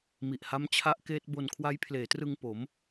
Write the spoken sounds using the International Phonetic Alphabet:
mi˨˩ʔha˦˥mt͡ɕʰa˦˥ʔ keː˦˥t̚bo˧n kʰwa˦˥jpʰleː˩˦trɯ˧ŋ po˩˦m

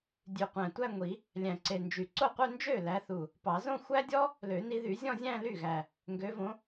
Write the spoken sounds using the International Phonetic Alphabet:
dʲʉ˨˩qʷæ̃˨˩tʷæ˥˧ŋʷi˨˩˦ | lʲæ̃˨˩ǀe˨˩nd͡ʒy˨˩˦ ǀo˥˩qʷœ˥˧ nd͡ʒø˥˩ læ˨˦θu˨˩ | pɑ˨˩˦zõ˥˧xʷæ˥dʲɔ˥ | lø˨˩˦ni˨˦ðy˨˩˦ zʲɔ̃˥˧zʲæ̃˥˧ly˥˩ɣæ˨˩ | ŋɡø˨˦võ˨˦

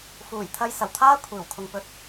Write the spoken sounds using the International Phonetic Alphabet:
fuː˨˩jt̪ʰɐ˧j sɐ˨˩wt̪ʰaː˥ kʷʰiː˨˩wkʰʊ˨ŋ pɵ˥t̚

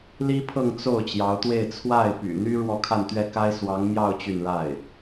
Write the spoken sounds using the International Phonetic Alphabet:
li˥pʰɤ˥˧ŋ t͡so˥˩ʊ̯ t͡ɕjɑ˧˥ʊ̯t̪we˥˧ɪ̯ t͡sʰwa˥˩ɪ̯ py̰˨˩n̪y˥ ɻwɔ˥˧kʰa˥˧nt̪ɥɛ˥˩ka˥ɪ̯ swɑ˧˥ŋmjɑ˥˧ʊ̯ t͡ɕy˥˧nɻa˥˩ɪ̯

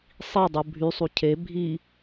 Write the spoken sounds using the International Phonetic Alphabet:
sˤidˤu bʱysˤu cʰe bʱi

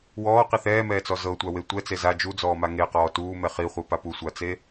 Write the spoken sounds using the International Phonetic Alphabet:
wɔːqi θɛːmɛːt͡sɔ zɤtʷawe tʷɛt͡se za d͡ʒud͡zɔːma ŋeqɔː tuːmɛ χiχʷipa pusʷat͡se

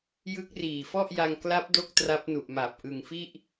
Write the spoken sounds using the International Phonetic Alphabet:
jɯ˦˥k̚ riː˨˩fɔ˥˩ʔja˧ŋ kla˦˥p̚do˦˥k̚ tra˦˥p̚nu˨˩ʔma˨˩p̚ ʔɯ˨˩ŋfi˥˩ʔ

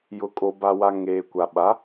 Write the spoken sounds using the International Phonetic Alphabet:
jʊ˨kʼo˨ba˨wa˨ ŋeː˨kʷa˨ ɓa˨˦

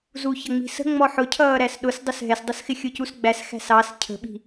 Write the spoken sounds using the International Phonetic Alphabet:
zuçʌŋ͡mi̤sə̤ ŋ͡mɔħʊcʰʌːɾæs ɗʊsdˤʊs ɦɛsdˤʌsxɪ xʲʊcusɡ͡bæs xæ̤sɑs cʰə̤ɓi̤

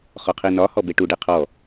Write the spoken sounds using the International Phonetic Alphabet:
χɔqʰinɒ hɔbeʈu ɖeqʰɔ

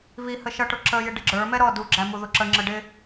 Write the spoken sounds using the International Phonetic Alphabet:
βi həʃʌʈʊ ǁəjɪ ɖɪɡ͡ǁə˞mɛ ɾɔ duɡ͡ǁæ muðʊǁəŋ͡ǁə ɖɪ

